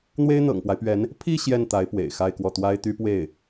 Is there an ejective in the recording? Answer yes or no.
no